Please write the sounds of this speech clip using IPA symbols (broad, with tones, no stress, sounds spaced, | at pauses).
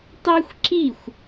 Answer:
tˤ ɛ˥ xʷ ǁ i˥˩ xʷ